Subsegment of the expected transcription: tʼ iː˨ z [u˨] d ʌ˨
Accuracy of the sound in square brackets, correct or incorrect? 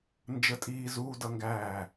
incorrect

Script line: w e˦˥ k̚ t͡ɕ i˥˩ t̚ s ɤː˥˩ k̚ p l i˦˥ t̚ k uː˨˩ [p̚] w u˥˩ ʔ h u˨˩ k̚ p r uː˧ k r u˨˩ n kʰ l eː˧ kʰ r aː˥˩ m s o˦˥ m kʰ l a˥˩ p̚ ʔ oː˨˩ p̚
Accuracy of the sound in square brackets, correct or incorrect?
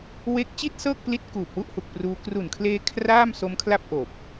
correct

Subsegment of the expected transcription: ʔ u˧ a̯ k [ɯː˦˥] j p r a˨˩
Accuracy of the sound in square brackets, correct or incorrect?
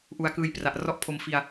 incorrect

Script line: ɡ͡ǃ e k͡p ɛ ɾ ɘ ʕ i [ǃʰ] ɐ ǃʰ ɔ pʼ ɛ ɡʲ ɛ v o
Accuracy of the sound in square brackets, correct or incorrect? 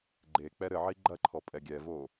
incorrect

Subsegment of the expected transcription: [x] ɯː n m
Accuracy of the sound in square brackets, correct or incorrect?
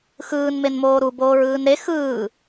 correct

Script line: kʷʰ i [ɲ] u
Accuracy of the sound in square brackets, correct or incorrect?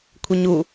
correct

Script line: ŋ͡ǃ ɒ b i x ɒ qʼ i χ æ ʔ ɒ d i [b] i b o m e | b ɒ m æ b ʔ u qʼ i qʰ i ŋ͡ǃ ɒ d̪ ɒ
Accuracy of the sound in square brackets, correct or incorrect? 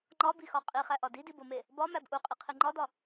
incorrect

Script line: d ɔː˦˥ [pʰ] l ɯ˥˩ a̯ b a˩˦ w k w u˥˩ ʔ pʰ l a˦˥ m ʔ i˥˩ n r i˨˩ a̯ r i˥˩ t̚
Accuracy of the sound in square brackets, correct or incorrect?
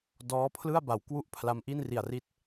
correct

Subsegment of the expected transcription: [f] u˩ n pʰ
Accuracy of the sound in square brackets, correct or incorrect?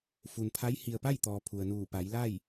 correct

